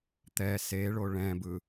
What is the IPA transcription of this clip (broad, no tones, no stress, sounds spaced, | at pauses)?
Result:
t̪ ɛ s e ɭ o ɭ ɛ̃ b ɯ